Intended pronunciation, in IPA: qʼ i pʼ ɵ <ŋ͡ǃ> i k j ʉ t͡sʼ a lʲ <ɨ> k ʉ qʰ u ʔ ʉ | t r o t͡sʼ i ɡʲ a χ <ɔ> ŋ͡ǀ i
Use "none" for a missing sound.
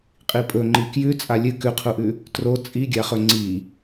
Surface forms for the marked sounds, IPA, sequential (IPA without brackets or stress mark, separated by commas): ŋ͡ǃ, ɨ, ɵ